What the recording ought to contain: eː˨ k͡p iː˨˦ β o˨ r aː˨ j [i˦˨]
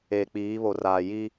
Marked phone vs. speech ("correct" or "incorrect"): incorrect